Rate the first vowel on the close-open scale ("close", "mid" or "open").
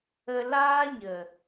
mid